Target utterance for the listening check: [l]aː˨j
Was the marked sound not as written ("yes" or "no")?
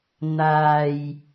yes